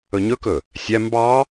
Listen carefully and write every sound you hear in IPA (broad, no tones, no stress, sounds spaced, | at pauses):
ɵ ɲ ɵ k ɵ | sʲ æ m b ɑ